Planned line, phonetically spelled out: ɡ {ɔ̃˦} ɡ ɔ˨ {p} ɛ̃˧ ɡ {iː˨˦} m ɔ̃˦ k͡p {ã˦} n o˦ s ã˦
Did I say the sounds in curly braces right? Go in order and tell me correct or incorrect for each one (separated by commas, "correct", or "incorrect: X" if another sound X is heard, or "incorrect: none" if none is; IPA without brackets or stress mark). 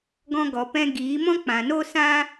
incorrect: ɔ̃˧, correct, correct, incorrect: ã˨